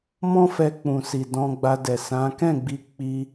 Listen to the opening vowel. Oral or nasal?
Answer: nasal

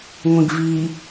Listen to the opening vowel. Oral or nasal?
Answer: nasal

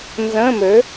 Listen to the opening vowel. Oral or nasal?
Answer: nasal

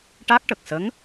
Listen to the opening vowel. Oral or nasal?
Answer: oral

